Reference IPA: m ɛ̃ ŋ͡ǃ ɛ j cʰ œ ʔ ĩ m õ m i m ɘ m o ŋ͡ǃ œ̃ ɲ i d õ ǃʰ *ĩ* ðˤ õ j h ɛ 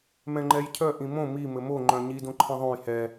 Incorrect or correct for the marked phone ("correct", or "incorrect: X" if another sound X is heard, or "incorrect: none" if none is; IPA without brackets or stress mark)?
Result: incorrect: ẽ